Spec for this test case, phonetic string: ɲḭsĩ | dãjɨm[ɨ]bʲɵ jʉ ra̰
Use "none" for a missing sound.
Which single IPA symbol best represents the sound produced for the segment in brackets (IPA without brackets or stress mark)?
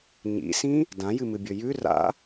ɨ